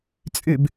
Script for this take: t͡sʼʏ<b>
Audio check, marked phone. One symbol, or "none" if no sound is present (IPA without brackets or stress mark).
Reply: b